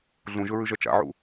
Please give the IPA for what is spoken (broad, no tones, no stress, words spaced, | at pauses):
ɮũʒɵɹʉʒɐ t͡ʃa̰ʕṵ